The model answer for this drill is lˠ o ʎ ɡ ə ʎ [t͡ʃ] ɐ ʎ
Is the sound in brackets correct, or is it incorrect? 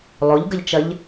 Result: correct